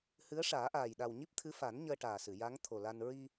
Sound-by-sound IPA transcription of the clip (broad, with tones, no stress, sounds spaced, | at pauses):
h ɨ˧˥ ə̯ ʂ aː˨˩˦ ʔ aː˨˩ j ɗ a˨˩ w ɲ i˦˥ p̚ t̪ʰ ɨ˧˥ f a˨˩˦ n ɲ əː˧ ʈ aː˨˩ s ɨ˨˩˨ j a˧˥ ŋ t̪ʰ o˨˩ l a˧ n ɹ i˧